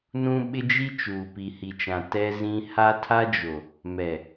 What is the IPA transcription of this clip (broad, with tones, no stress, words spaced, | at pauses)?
nũ˦ɓɪ˦d͡ʒi˦ t͡ʃuː˨pi˨hi˨t͡ʃã˨ tɛ˦zĩ˦ ha˦tʰa˦d͡ʒo˨ | mɛ˨